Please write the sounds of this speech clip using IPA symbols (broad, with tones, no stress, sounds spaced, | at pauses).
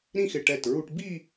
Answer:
ɾ ĩ˥˧ x ɪ˧˩ ʈ ɛ˧˩ t ɹ u˧ ʈ b i˥˧